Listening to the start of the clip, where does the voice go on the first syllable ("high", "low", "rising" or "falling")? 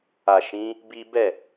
low